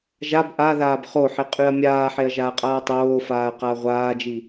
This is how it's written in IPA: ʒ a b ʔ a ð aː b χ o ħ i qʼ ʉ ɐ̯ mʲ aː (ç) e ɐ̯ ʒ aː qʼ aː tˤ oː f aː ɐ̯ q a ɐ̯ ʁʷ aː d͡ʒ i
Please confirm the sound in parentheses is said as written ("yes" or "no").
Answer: no